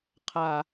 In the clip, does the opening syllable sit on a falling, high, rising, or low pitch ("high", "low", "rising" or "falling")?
low